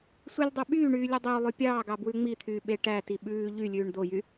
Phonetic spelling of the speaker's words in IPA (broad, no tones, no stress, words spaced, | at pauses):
sʷilʲdˤœ ɓyːɳyːlʲu dˤɵwlˠʉ pʲɑːɡɑbwʉ ŋ͡mit̪ʰyːɓe ʈæti ɓʉː ʎylʲʉːɳ d̪ojy